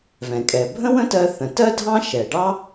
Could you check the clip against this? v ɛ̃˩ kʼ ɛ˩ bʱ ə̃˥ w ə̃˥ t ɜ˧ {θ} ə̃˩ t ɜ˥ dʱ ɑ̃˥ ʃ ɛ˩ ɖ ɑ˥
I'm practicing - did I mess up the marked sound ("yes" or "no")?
no